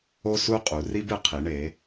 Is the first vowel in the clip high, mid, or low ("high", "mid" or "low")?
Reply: mid